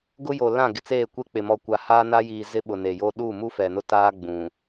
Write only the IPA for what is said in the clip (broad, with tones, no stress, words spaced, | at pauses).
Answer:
ɡʊ˦jo˨lã˦˨ ɡɪ˨t͡seː˦˨kʷe˦k͡pɪ˨ mɔ˨kʷa˨haː˦na˦ jiː˨ zɪ˦ɓʊ˨ ne˨jo˦ ɗuː˦˨mu˦ fɛ˨nʊ˦taː˦ ɡ͡bũ˨